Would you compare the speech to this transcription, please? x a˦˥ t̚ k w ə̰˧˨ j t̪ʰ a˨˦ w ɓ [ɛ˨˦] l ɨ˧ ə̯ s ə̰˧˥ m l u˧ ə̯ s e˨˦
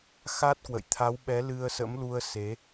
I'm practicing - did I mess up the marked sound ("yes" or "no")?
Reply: no